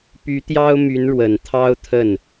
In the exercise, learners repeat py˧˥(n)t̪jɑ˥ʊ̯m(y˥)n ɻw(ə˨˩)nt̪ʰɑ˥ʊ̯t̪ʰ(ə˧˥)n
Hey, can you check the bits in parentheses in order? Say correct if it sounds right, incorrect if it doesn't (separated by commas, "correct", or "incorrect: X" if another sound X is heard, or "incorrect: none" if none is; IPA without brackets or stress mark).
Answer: incorrect: none, incorrect: y˧˥, correct, incorrect: ə˥˩